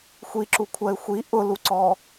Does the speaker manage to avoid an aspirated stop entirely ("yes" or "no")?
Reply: no